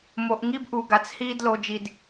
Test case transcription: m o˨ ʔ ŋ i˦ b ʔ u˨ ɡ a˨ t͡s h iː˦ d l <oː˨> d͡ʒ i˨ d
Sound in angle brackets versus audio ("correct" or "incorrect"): incorrect